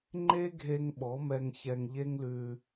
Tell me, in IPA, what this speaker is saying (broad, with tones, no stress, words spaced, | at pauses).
ŋ͡ǃe˦ɡʱe˧ŋ ɓɔ˨˦mɛ˧ŋçɛ˧ŋ ʎe˦ŋlʉ˧